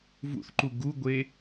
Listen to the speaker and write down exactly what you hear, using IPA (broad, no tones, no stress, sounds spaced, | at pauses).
v ṵ θ ǃ u ɡ u ɡʷ e